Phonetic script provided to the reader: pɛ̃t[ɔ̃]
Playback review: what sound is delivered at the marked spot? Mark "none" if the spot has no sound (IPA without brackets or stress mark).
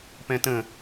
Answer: ə̃